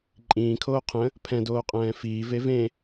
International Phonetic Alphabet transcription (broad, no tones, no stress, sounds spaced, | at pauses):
ǃʼ ĩː kʰ oː qʰ ə̃ | pʰ ɛ̃ d oː qʼ ɛ̃ː f iː v e v ẽ